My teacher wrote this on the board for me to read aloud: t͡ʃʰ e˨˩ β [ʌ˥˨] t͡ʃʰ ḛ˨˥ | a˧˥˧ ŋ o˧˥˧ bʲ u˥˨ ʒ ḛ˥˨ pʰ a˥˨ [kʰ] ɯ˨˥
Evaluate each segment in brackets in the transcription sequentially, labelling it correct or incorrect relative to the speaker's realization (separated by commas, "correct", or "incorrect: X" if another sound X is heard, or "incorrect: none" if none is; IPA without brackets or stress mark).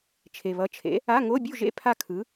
incorrect: ʌ˨˥, correct